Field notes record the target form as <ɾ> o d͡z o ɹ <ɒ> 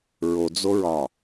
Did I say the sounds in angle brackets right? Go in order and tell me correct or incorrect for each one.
incorrect: ɹ, correct

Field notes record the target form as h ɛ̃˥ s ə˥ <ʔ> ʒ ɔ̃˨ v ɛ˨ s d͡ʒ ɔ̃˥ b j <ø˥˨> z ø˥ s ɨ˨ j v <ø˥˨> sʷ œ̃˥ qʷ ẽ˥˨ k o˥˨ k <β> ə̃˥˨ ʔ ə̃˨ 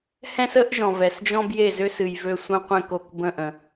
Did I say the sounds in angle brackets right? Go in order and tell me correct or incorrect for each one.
correct, incorrect: e˥˨, correct, incorrect: b

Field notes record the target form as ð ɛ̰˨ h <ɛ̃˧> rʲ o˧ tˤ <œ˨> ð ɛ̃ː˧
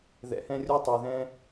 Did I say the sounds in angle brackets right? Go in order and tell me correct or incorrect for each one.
correct, incorrect: ɛ˨

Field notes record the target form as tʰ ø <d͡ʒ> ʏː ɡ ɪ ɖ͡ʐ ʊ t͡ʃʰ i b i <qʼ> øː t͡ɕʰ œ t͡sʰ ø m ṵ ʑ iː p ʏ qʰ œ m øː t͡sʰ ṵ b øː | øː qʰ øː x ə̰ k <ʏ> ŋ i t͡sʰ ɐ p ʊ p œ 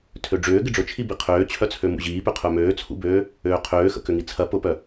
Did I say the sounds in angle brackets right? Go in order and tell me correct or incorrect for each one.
incorrect: ɖ͡ʐ, incorrect: qʰ, correct

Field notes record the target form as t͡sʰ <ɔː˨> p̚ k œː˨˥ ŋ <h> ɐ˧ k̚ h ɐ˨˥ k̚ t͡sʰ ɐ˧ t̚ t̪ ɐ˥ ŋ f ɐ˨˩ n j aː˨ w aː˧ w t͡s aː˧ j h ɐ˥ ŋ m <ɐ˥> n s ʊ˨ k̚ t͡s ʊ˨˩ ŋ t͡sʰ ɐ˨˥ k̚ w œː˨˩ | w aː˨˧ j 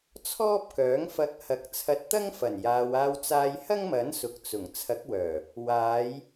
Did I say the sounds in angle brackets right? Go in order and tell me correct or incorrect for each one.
incorrect: ɔː˥, incorrect: f, incorrect: ɐ˨˥

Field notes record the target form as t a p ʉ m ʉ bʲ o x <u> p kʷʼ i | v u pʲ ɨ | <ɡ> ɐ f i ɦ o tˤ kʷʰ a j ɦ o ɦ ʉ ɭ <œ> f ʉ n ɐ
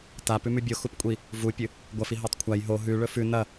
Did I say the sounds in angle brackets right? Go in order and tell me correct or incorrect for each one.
correct, incorrect: ɡʷ, incorrect: ɵ

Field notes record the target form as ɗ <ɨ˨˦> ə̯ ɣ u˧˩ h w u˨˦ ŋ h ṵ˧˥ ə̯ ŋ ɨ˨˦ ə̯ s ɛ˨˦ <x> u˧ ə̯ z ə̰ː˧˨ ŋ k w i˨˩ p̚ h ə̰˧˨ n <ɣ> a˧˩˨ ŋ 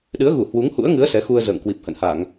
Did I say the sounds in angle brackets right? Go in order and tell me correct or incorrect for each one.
correct, correct, incorrect: h

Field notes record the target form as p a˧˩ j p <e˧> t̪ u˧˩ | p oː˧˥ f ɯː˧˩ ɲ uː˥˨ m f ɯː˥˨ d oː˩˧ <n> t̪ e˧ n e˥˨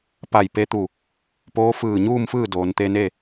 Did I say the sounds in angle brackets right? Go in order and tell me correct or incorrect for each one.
correct, correct

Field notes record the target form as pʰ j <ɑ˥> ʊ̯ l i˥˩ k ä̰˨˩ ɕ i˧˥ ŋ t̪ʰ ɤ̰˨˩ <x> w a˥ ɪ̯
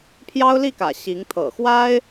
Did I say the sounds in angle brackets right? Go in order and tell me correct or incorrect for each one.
correct, correct

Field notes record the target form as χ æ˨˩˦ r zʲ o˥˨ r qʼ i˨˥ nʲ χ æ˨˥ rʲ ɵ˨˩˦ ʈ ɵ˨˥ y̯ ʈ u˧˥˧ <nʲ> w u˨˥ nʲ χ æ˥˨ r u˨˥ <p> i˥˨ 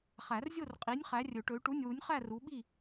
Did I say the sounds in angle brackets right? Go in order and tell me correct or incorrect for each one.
correct, incorrect: ɓ

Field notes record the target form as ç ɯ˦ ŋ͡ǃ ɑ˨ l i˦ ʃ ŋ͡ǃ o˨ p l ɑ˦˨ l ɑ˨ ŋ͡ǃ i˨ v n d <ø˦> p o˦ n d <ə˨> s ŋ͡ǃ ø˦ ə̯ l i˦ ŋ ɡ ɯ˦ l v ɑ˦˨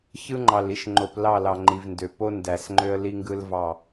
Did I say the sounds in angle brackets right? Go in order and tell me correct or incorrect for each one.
incorrect: ø˨, incorrect: æ˨

